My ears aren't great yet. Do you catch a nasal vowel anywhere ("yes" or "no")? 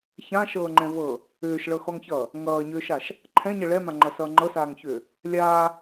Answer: yes